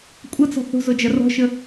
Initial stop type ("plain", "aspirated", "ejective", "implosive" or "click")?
ejective